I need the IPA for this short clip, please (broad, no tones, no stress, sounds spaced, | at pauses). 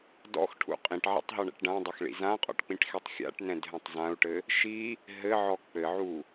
d ɔ̰ x ʈʰ ṵ qʼ ĩ ʈ ʕ ɛ̰ tˤ ɦ ɔ ɳ ɛ̰ ʈ ɖ ã dˤ ɐ x ɭ ḭ z ã qʼ ɔ̰ ʈ k͡p ĩ ʈ x e tˤ xʲ a̰ ʈ n ɛ̃ d ɦ ɛ̃ tˤ z ã u̯ ʈ ɘ | ʃ i | ɦ ɘ ʕ ɔ k͡p ɘ ʕ u